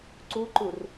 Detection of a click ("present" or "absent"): present